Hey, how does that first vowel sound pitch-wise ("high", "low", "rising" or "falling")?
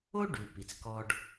high